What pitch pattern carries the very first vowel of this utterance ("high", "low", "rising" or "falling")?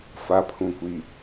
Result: low